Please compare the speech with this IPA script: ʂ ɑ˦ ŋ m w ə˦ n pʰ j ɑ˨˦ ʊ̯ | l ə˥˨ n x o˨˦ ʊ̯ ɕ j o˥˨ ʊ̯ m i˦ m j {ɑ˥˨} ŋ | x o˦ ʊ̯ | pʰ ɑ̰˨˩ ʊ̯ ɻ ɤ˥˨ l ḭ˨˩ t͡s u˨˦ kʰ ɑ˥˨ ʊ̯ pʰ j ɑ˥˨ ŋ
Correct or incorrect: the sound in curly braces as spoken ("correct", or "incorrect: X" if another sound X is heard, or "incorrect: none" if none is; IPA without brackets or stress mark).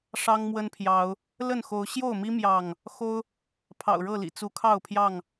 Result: correct